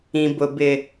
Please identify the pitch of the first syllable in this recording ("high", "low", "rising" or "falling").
low